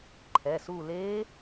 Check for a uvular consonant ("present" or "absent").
absent